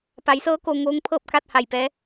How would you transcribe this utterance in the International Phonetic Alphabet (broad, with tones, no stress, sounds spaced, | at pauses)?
p a˩˧ j s ɤː˧˥ k o˧ ŋ oː˧˥ ŋ pʰ ɤː˥˨ p̚ k a˥˨ t̚ h a˧˩ j p ɛː˧˥